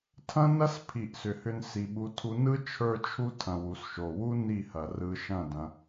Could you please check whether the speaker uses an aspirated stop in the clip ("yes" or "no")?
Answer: yes